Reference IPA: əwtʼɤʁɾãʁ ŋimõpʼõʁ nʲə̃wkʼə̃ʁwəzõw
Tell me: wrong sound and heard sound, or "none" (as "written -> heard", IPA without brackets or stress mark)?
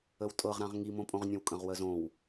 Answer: none